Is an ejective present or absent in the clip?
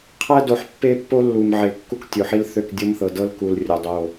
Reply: absent